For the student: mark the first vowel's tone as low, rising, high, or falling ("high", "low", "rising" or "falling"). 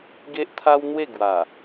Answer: high